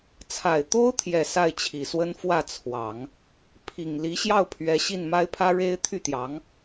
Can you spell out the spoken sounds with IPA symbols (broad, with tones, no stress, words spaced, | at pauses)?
t͡sʰa˨˩ɪ̯t̪o˥ʊ̯ t̪ʰjɛ˨˩ sa˥˩ɪ̯t͡ɕʰi˨˩swə˥n fwä˥˩t͡sʰwɑ˨˩˦ŋ | pʰi˨˩ŋ li˧˥ɕjɑ˥˩ʊ̯pʰɥɛ˧˥ ɕi˥˩nma˥ɪ̯pʰä˥ ɻe˥ɪ̯ t̪ʰy˥˩t̪jɑ˧˥ŋ